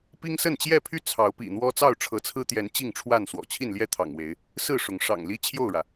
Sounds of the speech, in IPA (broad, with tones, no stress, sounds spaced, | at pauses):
p i˦ ŋ s ə˥˨ n t͡ɕ j ɛ˥˨ pʰ y˥˨ t͡sʰ ɑ˨˦ ʊ̯ p ḭ˨˩ n̪ w ɔ˦ t͡s ɑ˥˨ ʊ̯ ʈ͡ʂʰ ɤ˨˦ t͡sʰ ɹ̩˦ t̪ j ɛ˨˦ n t͡ɕ i˥˨ ŋ ʈ͡ʂʰ w a˥˨ n s w ɔ̰˨˩ t͡ɕʰ i˥˨ n l j ɛ˥˨ t̪ʰ ɑ̰˨˩ ŋ w e˨˦ ɪ̯ | s ɹ̩˥˨ ʂ ʊ˨˦ ŋ ʂ ɑ̰˨˩ ŋ l i˦ t͡ɕʰ j o˥˨ ʊ̯ ɻ ä˩